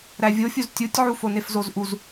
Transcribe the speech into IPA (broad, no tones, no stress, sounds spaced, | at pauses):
ɾ æ vʲ o fʲ u z tʲ u tʲ ʕ u f o n e f z o z ʔ u z